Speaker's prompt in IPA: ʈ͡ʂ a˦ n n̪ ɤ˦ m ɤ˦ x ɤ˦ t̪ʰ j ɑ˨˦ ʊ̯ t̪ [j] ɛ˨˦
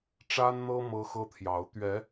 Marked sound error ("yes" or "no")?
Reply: yes